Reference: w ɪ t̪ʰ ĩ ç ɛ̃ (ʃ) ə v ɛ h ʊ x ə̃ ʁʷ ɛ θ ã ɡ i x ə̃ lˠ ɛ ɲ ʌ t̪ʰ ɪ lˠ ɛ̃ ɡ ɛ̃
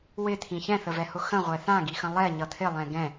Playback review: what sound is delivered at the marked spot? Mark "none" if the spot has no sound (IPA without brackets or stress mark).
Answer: θ